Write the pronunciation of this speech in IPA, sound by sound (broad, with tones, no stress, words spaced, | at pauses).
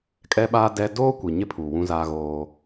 kʼɛ˦ɓaː˦ dɛ˦ doː˦kʷi˨ ɲɪ˦ pʰu˨wũ˦zaː˦ɣoː˦